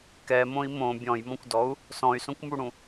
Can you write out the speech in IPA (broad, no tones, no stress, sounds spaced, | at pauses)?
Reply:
k ɛ m õ i̯ m õ bʲ ɔ̃ j m ɔ̃ kʷ d ɔ u̯ | s ɔ̃ y̯ s õ kʷ m u ɽ ũ